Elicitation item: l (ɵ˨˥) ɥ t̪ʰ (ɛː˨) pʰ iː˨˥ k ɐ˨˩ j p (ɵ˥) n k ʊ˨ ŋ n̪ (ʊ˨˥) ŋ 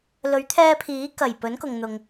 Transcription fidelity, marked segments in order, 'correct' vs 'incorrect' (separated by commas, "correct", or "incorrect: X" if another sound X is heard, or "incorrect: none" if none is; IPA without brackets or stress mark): correct, incorrect: ɛː˧, incorrect: ɵ˨˥, incorrect: ʊ˨